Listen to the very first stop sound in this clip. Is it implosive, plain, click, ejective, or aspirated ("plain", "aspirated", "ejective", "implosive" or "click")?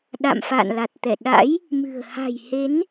implosive